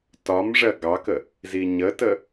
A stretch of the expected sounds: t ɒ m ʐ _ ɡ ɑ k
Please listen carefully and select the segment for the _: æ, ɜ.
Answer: ɜ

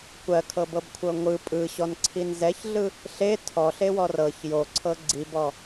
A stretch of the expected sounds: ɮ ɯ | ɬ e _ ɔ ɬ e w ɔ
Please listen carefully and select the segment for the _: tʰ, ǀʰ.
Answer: tʰ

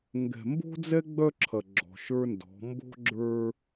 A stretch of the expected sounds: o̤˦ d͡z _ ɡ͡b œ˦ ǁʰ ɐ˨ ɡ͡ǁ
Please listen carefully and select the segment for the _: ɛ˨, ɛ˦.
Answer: ɛ˦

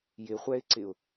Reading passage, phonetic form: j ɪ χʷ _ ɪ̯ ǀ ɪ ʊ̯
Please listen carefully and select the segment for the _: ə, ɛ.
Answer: ɛ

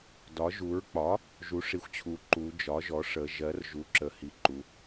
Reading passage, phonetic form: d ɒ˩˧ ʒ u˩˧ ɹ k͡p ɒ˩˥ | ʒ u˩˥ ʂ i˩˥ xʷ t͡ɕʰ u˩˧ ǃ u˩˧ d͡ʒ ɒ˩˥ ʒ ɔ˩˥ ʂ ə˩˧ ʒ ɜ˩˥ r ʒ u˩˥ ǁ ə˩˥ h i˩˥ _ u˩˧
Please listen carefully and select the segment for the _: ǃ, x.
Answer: ǃ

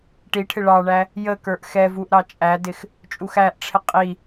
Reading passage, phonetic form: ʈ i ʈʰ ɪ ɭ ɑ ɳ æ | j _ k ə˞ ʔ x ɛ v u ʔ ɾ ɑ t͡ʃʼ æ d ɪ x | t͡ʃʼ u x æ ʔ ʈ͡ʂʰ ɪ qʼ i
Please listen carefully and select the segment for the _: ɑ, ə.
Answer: ə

